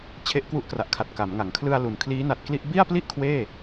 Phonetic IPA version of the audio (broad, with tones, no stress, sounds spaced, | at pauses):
t͡ɕʰ e˦˥ ʔ k w u˦˥ ʔ k r a˨˩ ʔ kʰ a˨˩ t̚ k a˩˦ m ŋ a˩˦ ŋ kʰ l ɯ˧ a̯ l u˩˦ n kʰ l iː˦˥ n a˨˩ t̚ k l i˥˩ ʔ b i˥˩ a̯ p l i˥˩ ʔ kʰ w eː˥˩